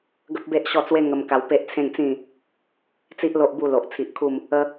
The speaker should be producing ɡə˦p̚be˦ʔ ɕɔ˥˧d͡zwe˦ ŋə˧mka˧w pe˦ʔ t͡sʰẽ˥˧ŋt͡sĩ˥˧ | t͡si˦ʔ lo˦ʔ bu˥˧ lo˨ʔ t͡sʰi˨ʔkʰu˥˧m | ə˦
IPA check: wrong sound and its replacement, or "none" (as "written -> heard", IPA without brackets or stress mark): d͡z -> t͡s